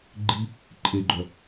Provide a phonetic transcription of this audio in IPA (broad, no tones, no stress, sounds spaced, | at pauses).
ɡ͡ǃ i | ǃʼ e ɡ͡ǃ œ